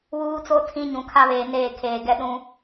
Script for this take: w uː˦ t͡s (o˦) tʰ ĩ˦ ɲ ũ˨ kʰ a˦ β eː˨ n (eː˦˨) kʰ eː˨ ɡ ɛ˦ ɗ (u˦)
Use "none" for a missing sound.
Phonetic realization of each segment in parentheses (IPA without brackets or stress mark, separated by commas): o˦, eː˦˨, ũ˦